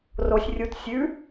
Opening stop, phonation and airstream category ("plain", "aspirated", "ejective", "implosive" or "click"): plain